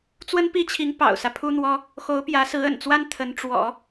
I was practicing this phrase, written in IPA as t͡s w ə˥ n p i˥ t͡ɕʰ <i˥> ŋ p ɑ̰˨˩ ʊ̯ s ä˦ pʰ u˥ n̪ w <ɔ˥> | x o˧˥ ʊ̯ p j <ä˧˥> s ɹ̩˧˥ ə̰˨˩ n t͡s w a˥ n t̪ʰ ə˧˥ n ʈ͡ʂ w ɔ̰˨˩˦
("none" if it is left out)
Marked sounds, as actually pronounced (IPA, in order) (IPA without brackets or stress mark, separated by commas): i˧˥, ɔ˥, ä˧˥